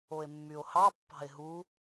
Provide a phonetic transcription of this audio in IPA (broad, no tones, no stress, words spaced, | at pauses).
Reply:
oe̯mːyo̯hɑ pːɑ̤e̯ɦu